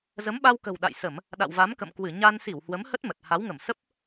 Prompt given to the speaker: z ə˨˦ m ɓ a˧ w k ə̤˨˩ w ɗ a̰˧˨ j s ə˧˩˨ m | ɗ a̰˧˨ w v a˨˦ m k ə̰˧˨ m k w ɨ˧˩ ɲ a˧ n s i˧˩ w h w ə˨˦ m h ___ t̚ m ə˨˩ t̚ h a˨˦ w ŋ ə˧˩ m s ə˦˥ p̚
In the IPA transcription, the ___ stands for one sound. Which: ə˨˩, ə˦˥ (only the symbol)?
ə˦˥